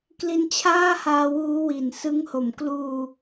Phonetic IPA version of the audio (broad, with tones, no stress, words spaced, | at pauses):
kli˧nt͡ɕʰaː˥˩haː˧ wuː˦˥wi˨˩n sɯ˦˥ŋho˨˩m kluː˧